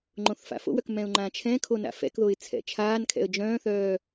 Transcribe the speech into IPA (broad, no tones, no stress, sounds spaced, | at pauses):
ŋ͡ǃ õ θ f a̰ f o̰ w œ k m ɛ̃ ʊ̯ ŋ͡ǃ ã t͡ʃʰ ɛ̃ kʰ o n a̰ f ɛ̰ k ð o ɪ̯ t͡sʰ ɛ̰ t͡ʃʰ aː n kʰ ɛ̰ ə̯ d͡ʒ œ̃ː θ œː